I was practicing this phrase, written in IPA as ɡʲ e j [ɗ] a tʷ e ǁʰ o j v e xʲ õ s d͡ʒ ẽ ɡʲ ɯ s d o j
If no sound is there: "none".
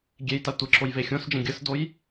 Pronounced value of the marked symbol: t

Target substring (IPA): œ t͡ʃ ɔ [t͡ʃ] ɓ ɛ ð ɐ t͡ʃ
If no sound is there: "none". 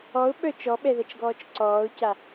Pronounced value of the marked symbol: none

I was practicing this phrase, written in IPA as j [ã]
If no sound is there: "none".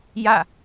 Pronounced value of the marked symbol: a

